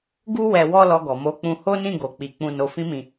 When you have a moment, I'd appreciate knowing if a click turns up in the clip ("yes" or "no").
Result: no